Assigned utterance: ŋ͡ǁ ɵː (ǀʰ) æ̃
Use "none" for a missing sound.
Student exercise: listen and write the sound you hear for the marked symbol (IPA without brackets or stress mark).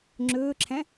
ǁʰ